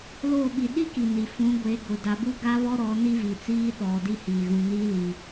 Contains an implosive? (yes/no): yes